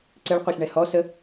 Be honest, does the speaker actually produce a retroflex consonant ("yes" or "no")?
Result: yes